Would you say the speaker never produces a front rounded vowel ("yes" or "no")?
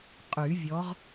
no